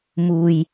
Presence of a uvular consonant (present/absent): absent